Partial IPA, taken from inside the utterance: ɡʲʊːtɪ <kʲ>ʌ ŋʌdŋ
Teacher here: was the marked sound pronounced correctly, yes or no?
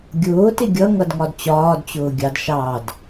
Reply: no